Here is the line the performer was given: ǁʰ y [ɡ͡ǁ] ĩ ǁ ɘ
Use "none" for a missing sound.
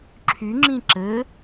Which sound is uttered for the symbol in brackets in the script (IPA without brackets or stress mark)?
ŋ͡ǁ